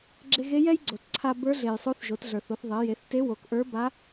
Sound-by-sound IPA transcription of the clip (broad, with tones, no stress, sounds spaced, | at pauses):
ɡ͡ǁ e˧ ɣ e˧˥ j ɛ˥ j ɡ͡ǀ o˩ t ǀʰ a˧ b ə˞˧˥ ɮ e˩ j sˤ o˧˥ θ ʒ o˩˧ t ɮ ə˞˩ θ o˩˧ θ ðˤ e˩˧ j e˩˧ θ t e˧˥ w o˩˧ k ʔ ə˞˧˥ b a˧˥